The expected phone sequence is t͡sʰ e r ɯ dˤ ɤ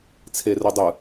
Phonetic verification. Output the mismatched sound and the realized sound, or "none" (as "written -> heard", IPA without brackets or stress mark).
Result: ɤ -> ɯ